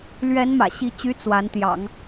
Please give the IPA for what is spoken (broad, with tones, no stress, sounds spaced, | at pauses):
l ɥ ɛ˧˥ n m ä̰˨˩ ɕ i˧˥ t͡ɕ y˧˥ t͡s w a˧˥ n t̪ j ɑ̰˨˩˦ ŋ